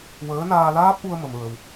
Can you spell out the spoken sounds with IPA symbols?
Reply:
w əː˧˥ n aː˧ l aː˦˥ p̚ ʔ u˧ ə̯ m ə˧ m ɹ ə˧ w

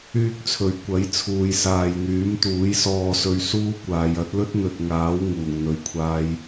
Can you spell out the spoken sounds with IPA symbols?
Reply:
yː˥ k̚ t͡sʰ ɵ˨ ɥ kʷ ɐ˨˥ j t͡sʰ uː˨ j s aː˨ j n̪ yː˨˥ m t̪ uː˨˥ j s ɔː˨ s ɵ˨˧ ɥ s uː˥ kʷ aː˨˧ j ɐ˨˥ t̚ l ɵ˥ t̚ n̪ ɵ˨ t̚ ŋ aː˨˥ w ŋ uː˨˩ ŋ n̪ ɵ˨ ɥ kʷʰ aː˧ j

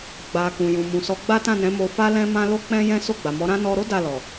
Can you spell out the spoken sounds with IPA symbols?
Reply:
ɡ͡b a˨ k ũ˨ j ũ˨ m ũ˨ s ɔ˨˦ ɡ͡b a˦ t ã˦˨ n ɛ̃˨˦ m o˧ f a˦ l ɛ̃˦ m ã˦ l o˦ k͡p ɛ̃˦ j ɛ̃˦ s o˦˨ ɡ͡b a˨ m ɔ˨˦ ɾ ã˦ n ɔ˧ ɾ o˦ d a˦˨ l ɔ˨

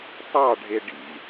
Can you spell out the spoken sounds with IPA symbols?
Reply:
tˤ ɑ ɖʱ e ɖ ḭ

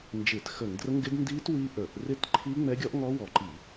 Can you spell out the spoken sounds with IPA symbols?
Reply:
n d͡ʒ ɪː˧˩˧ t x ə˧˩˧ ŋ d r ə˦˥ ŋ ɡ ɪ˦˥ d n d iː˦˥ t w i˦˥ ʔ ə˞˧˩˧ ʔ r ɪ˦˥ t ǃʰ iː˦˥ ŋ͡m ɛ˦˥ ɡʲ ɔ˦˥ ʔ ŋ ɔ˦˥ w ɔ˧˩˧ ǃ i˧˩˧

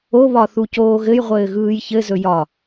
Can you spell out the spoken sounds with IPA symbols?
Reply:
o β ɒ θ u c oː ɣ ɘ j ʁʷ ɘː ɣ ɯː j ç ɘ z ɵ j ɒ

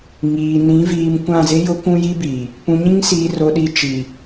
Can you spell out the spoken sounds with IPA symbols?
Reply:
ŋ iː˨ n ĩ˨˦ v iː˨ m kʷ ã˦˨ z ɪ˦ j ʊ˦ kʷ ũ˦ j i˦ b iː˨ | p ũ˨ ɲ ĩ˦ ŋ s iː˨ r o˨ ɗ i˨ t͡ʃ i˨

